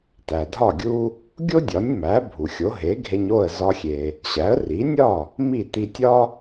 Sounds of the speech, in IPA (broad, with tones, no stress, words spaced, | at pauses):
tæ˩dʱɒ˥˩ ɡʲu˧ | ɡʲo˥dʲɒ˩˥nʲmæ˩˥ bʱu˩xʲo˩˥ ɦe˩˥ɡʱe˧ɲ o˥˩ə̯zɒ˧xʲe˩ | ɕæ˩˥ə̯ri˩˥nʲɒ˥˩ | mi˥˩t̪i˧tʲɒ˥